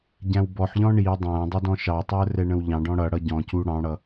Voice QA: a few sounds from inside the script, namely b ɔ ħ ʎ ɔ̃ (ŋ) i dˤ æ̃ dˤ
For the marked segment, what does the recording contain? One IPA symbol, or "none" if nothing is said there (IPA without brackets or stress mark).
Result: ɳ